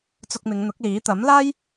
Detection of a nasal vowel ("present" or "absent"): absent